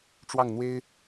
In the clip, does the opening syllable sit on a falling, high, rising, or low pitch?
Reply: falling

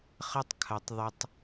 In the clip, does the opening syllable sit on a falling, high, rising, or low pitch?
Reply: high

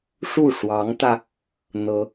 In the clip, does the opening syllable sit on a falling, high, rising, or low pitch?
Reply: falling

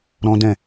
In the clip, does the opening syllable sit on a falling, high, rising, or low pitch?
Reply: high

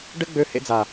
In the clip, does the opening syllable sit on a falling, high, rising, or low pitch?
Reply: high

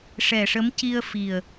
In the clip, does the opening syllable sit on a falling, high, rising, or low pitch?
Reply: low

